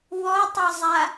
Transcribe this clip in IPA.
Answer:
w ɔ tˤ ɤ zˤ a

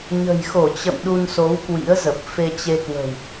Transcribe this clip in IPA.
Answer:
ɲ ə̤˨˩ j x o˧˩ t͡ɕ ə̰˧˨ m ɗ u˧ n s o˨˦ w k w ḭ˧˥ ə̯ z ə˨˩ p̚ f e˧ t͡ɕ e˧ k w ə̤˨˩ w

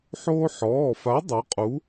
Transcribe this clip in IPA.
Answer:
ħ oː˥ ħ ɔː˩˧˩ f a˨˥ dˤ o˨˥ qʼ u˨˥

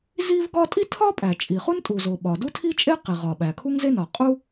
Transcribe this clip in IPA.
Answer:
z i˥ v ɡ ɒ˥ tʼ i˥ tʰ ɒ˥ pʼ æ˩ t͡ʃʼ i˩ χ u˥ n tʼ u˩ z o˩ ɓ ɒ˩ d u˥ tʰ i˥ t͡ʃʼ e˥ q i˩ ʁ ɒ˩ ɓ æ˩ kʰ u˥ ŋ z e˥ n ɒ˩ qʼ u˥

